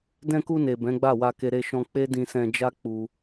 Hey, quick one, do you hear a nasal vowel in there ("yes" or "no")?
yes